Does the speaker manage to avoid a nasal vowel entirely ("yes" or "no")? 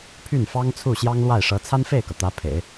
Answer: yes